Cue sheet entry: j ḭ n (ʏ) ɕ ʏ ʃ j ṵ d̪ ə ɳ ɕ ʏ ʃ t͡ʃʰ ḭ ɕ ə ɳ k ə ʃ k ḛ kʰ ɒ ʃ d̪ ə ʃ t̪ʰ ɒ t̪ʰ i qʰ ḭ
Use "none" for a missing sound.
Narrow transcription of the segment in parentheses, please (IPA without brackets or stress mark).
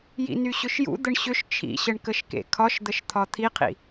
y